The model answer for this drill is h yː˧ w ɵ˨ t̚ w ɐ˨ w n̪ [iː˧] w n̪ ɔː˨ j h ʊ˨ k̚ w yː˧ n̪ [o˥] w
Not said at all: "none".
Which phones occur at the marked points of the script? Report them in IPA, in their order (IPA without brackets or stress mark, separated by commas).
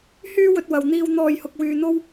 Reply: iː˧, o˥